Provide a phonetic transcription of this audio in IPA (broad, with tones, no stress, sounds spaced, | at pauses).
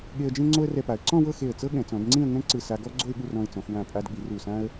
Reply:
ɠ e˧ ə̯ d͡ʒ ẽ˥ ŋ͡ǀ o˥ ə̯ r ɛ˧ p a˩˧ ə̯ ǀ ɔ̃˥˧ w ɤ˥˧ x e˧˩ ə̯ t͡s ɤ˥ ɠ ɛ̃˩˧ t͡s ɔ̃˩˧ d ŋ͡ǀ ĩ˥˧ ə̯ ŋ ɛ̃˥ ǀ ɯ˧˩ s a˧ ɡ ɔ˥ ɡ͡ǀ o˥˧ ɪ̯ ɠ u˥˧ r ɔ̃˧ ɪ̯ t͡s ɔ̃˩˧ x w ã˧˩ pʼ a˧ d ɠ i˩˧ r u˧˩ s ã˥ ə̯